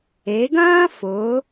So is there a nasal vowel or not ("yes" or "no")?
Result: yes